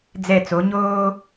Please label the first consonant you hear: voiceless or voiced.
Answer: voiced